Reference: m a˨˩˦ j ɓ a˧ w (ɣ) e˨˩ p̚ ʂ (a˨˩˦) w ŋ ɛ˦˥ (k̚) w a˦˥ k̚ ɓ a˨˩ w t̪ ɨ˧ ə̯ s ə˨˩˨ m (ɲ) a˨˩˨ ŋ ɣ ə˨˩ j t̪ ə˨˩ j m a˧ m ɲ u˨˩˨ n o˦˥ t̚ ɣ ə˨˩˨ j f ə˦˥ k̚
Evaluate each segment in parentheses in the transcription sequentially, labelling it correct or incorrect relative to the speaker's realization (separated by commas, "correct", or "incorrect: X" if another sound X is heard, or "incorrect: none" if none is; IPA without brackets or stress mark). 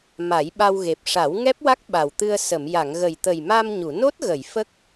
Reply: correct, correct, incorrect: p̚, incorrect: j